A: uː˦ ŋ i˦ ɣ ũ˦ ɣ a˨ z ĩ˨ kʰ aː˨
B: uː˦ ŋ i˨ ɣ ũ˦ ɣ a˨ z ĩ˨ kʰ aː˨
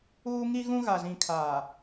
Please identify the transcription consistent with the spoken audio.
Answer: A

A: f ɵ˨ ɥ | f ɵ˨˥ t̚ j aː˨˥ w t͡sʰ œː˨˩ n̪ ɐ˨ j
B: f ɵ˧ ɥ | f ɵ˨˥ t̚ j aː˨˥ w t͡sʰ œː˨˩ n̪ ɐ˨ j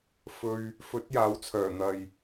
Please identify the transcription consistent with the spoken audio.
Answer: B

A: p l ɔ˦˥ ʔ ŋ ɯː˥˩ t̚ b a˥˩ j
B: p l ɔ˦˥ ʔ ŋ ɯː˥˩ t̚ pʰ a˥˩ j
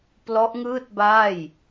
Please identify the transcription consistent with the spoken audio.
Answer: A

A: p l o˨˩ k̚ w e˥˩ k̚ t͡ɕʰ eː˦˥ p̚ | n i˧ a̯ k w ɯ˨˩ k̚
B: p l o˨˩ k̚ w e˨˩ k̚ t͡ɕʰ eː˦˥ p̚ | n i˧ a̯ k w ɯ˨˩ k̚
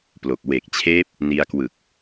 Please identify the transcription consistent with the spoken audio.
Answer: B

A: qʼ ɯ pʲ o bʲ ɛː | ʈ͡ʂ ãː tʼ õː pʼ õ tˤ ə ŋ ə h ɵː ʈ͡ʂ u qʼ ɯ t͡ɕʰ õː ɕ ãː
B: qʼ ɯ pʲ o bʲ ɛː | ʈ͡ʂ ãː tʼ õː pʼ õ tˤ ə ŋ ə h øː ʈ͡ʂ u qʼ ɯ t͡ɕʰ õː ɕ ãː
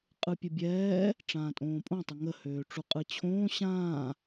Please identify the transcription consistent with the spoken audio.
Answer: B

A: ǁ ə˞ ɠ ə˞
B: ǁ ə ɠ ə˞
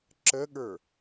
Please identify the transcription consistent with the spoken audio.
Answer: B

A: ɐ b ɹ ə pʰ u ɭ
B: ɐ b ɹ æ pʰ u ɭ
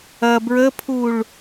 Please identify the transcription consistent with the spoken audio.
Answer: A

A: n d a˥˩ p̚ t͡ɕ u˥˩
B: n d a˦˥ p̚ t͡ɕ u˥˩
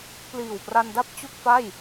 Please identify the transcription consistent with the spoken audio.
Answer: A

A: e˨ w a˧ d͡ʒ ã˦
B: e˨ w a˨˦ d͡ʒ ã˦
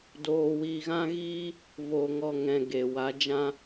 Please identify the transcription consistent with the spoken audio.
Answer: B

